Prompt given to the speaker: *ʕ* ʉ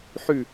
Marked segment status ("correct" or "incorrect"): incorrect